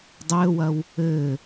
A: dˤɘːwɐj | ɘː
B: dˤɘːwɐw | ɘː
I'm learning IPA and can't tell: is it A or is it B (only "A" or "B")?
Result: B